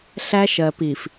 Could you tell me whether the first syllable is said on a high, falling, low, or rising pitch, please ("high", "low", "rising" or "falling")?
high